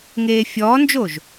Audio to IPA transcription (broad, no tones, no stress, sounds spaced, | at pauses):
ŋ eː fʲ ɔː n d͡ʒ o ʒ